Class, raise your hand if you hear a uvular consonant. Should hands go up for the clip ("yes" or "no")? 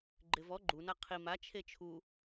yes